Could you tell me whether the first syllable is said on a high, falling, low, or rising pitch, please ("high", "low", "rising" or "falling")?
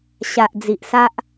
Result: low